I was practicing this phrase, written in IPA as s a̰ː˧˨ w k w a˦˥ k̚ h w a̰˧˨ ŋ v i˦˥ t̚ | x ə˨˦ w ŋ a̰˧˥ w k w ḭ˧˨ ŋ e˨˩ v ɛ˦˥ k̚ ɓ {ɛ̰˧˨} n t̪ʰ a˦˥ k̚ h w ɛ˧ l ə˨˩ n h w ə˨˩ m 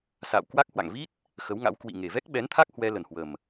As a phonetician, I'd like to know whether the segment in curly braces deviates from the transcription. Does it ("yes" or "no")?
yes